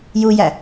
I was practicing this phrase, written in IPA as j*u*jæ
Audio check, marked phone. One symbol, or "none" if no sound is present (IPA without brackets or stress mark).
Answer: u